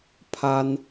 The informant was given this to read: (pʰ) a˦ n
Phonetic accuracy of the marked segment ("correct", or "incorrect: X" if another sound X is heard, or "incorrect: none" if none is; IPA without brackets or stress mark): correct